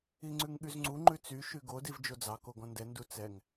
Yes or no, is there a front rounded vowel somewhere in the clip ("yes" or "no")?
yes